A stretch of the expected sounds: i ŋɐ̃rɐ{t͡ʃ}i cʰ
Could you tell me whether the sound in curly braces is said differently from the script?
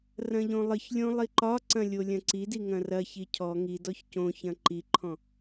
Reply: yes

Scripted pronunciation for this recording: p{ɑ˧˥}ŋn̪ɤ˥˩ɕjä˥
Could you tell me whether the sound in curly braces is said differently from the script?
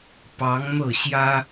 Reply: no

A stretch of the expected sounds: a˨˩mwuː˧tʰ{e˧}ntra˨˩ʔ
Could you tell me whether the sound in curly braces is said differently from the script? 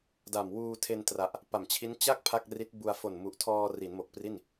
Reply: no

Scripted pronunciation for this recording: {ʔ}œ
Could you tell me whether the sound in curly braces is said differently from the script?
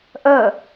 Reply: no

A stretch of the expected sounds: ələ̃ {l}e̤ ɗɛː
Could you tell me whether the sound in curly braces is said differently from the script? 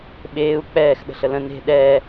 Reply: yes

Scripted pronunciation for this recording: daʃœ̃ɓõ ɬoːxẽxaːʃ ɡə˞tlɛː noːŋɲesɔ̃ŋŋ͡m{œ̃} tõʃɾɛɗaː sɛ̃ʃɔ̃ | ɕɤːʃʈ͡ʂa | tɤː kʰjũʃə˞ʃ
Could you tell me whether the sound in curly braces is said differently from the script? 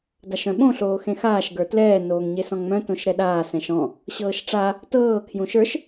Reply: no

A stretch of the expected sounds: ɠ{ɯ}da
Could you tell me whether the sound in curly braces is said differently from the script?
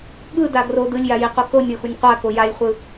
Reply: no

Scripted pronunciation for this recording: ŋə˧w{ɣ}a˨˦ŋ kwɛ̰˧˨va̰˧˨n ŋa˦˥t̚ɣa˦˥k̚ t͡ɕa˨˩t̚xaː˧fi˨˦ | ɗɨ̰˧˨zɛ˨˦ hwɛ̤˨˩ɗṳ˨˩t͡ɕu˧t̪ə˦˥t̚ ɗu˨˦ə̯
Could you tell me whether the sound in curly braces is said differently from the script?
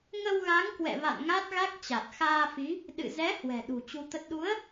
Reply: no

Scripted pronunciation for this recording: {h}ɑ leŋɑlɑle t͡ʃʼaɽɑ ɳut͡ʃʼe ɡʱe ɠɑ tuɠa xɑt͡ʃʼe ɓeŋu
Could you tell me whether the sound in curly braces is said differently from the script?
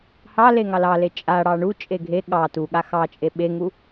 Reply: no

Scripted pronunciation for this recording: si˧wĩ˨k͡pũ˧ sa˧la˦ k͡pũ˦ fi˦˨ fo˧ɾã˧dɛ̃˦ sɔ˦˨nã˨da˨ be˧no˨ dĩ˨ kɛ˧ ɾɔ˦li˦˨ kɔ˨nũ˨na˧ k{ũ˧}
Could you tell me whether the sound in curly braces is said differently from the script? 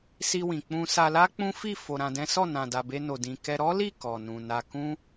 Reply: yes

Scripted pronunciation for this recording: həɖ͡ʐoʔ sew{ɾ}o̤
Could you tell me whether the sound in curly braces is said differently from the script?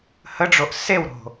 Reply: no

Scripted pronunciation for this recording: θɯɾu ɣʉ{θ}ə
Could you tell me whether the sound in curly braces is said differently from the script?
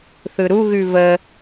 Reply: yes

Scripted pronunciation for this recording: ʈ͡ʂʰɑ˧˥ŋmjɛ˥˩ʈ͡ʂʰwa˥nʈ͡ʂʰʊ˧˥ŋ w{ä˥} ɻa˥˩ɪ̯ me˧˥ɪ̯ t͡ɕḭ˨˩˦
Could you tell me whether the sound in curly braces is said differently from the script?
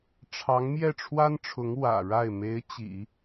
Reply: yes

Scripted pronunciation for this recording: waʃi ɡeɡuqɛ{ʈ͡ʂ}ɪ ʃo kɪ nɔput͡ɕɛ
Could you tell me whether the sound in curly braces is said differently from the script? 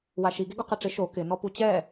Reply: no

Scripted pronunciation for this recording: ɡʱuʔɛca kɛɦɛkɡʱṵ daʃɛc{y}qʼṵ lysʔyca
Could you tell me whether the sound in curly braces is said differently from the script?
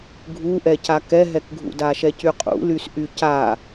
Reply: no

